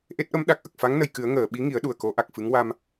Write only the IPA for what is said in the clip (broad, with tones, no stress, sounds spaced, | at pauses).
ʔ e˦˥ t̚ ʔ ə˧˥ m ɗ a˨˩ k̚ ʔ ə˨˩ k̚ f a˧˥ ŋ n ə˨˩ j k ɨ˨˩˦ ə̯ ŋ əː˨˩˨ ɓ i˧˥ ŋ i˨˩˦ ə̯ ɗ u˨˩ ə̯ k o˨˩˦ ʔ a˨˩ k̚ f ɨ˧˥ ŋ w a˧ m